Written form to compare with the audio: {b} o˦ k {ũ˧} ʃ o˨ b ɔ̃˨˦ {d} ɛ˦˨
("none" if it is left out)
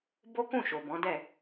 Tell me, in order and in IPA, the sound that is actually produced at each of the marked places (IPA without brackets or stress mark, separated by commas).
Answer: b, ũ˦˨, d